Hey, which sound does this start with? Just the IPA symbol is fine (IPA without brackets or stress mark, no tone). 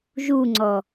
ʒ